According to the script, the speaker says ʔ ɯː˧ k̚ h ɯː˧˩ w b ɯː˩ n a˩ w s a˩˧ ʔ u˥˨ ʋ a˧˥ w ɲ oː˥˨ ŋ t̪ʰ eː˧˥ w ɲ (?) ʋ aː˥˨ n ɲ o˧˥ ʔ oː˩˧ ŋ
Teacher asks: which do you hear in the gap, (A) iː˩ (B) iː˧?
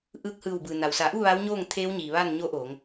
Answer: A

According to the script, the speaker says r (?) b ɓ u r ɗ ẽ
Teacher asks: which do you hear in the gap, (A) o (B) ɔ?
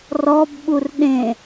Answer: B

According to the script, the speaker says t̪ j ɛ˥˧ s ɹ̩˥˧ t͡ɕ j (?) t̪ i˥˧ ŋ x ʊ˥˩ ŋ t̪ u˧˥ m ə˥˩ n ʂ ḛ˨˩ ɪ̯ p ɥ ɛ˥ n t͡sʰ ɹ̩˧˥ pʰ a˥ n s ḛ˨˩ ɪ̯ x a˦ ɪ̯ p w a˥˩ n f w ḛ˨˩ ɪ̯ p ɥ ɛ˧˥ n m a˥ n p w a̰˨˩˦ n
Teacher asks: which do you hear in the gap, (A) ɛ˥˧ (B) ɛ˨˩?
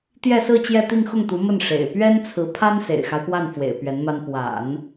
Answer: A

